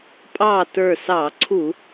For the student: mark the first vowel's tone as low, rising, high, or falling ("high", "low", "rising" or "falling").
falling